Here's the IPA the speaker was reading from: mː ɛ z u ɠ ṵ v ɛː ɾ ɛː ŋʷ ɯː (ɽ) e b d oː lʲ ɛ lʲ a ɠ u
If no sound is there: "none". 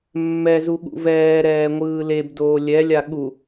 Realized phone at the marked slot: l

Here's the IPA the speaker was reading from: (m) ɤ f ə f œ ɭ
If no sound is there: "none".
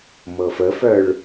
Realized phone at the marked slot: m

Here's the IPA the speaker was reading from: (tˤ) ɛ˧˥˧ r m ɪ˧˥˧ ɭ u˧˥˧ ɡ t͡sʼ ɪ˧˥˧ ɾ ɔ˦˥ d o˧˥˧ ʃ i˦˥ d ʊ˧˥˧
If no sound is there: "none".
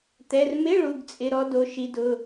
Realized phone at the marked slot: t̪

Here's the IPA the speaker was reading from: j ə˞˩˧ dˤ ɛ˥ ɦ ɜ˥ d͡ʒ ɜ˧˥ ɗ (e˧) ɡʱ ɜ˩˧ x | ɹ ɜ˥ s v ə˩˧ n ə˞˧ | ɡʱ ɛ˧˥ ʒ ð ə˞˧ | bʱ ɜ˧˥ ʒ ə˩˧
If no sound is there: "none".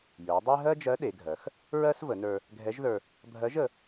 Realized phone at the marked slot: e˩˧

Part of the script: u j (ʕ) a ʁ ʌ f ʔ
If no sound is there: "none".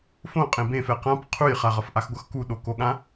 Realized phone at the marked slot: χ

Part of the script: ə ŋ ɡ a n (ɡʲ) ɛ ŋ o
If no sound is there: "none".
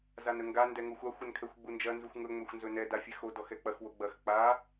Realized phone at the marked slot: d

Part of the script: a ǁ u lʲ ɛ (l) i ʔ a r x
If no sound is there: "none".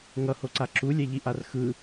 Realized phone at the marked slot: ʎ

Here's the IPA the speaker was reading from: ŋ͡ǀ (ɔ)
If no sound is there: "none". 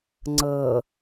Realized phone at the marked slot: ɤ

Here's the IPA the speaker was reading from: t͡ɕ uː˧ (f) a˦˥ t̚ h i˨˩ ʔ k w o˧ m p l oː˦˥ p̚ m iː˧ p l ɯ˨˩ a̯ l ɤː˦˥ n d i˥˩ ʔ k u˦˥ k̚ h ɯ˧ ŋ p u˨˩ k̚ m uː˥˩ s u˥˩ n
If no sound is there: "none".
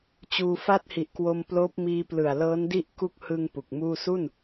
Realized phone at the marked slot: f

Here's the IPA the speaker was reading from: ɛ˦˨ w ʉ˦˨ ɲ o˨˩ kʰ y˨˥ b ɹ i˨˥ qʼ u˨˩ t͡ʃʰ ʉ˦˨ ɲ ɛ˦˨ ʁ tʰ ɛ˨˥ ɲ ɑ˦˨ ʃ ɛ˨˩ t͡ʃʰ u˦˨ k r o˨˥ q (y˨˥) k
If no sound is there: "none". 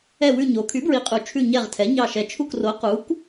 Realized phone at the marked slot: u˨˥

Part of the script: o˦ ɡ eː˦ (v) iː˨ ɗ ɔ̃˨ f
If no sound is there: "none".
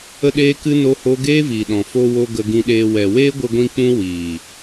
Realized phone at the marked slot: v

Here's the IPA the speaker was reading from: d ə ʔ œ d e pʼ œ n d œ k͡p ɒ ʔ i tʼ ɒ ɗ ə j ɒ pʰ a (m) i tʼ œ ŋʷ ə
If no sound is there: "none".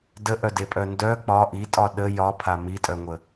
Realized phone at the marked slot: m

